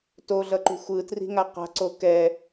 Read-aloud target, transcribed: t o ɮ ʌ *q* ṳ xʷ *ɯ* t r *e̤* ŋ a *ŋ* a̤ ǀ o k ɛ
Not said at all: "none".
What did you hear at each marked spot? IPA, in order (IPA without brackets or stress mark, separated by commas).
ǃ, ɯ, i̤, q